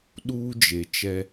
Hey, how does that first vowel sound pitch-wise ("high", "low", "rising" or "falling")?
high